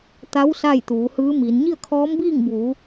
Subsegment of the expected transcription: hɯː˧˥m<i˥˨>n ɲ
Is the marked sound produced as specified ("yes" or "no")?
no